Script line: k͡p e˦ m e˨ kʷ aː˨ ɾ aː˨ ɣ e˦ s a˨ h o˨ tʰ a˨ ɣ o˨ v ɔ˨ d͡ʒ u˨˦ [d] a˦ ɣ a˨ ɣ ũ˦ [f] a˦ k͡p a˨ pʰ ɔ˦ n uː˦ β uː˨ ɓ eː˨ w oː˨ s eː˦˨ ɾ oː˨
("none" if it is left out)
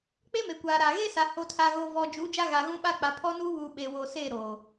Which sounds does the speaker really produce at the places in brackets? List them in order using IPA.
d͡ʒ, ɓ

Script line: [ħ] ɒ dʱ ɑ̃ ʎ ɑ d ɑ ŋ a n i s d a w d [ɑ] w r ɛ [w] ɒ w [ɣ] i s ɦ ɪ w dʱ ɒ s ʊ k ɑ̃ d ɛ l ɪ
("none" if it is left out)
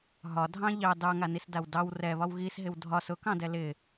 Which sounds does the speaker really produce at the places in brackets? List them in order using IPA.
ɦ, ɑ, β, ɣ

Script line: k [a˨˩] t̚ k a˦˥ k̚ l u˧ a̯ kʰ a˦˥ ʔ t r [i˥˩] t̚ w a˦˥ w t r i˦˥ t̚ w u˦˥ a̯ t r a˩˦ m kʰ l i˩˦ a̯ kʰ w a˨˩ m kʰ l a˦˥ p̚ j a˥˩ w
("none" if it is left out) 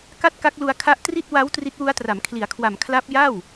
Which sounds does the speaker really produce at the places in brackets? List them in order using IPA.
a˥˩, i˥˩

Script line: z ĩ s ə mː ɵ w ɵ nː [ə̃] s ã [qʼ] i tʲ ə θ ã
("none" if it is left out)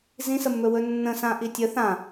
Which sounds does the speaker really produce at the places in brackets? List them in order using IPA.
ə̃, ʔ

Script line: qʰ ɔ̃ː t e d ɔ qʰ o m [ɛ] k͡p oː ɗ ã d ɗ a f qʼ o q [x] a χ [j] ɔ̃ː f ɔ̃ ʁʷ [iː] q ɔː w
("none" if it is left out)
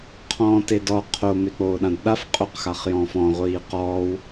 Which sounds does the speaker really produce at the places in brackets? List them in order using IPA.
e, x, j, iː

